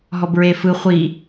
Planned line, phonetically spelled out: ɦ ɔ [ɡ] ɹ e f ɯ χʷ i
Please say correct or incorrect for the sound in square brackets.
incorrect: b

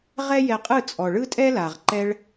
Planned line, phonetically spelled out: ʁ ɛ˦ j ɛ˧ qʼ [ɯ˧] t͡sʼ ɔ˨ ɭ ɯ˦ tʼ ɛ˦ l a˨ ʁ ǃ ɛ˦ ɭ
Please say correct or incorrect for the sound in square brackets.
incorrect: ɯ˦˨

